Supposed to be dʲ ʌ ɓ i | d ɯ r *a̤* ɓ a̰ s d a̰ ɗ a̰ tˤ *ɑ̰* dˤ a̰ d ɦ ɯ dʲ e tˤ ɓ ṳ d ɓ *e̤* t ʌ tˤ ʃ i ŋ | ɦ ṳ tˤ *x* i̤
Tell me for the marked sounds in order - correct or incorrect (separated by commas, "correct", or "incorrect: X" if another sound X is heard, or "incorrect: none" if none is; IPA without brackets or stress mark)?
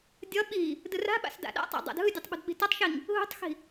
correct, incorrect: a̰, incorrect: i̤, correct